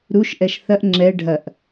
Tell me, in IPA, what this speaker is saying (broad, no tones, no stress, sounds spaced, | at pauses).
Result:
ɾ u ʃ ʔ ɛ ʃ θ ɐ ʔ ŋ͡ǁ ɛ ɖʱ ɐ ʔ